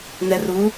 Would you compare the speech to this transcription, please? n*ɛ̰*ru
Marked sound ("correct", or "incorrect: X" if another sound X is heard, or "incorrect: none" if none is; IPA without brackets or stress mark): incorrect: ɛ